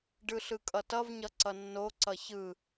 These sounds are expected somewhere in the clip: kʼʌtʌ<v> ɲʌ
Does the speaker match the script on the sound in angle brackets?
yes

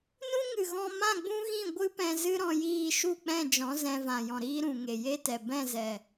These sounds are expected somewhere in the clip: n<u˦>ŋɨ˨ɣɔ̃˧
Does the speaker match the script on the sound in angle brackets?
no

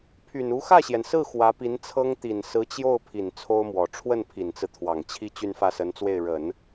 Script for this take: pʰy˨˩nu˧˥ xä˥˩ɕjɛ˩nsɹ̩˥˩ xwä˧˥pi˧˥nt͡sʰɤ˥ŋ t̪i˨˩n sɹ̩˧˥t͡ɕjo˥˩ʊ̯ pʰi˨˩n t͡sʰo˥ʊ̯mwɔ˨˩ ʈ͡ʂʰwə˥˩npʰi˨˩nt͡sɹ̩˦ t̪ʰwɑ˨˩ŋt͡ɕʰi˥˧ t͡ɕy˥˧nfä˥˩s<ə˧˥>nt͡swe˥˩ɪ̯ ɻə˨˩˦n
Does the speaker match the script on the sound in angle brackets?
yes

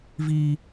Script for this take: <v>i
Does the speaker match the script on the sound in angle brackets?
yes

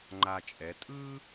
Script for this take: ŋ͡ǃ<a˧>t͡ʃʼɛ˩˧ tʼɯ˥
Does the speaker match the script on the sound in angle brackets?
yes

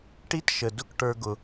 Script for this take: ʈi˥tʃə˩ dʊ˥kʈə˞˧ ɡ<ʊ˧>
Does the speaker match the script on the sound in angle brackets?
no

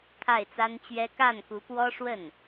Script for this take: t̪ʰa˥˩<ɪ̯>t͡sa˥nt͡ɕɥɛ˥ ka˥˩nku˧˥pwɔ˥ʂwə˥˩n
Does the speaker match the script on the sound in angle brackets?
yes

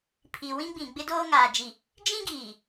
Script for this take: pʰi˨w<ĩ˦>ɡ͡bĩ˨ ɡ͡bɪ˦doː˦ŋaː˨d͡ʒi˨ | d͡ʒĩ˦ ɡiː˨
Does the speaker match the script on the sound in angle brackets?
yes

